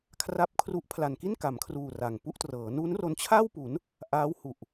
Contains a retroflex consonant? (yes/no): no